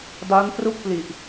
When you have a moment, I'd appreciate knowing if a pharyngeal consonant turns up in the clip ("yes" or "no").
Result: no